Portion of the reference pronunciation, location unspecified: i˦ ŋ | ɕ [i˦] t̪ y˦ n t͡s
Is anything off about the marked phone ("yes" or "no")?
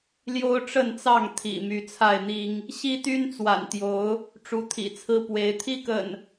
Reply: no